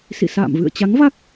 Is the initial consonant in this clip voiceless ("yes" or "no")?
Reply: yes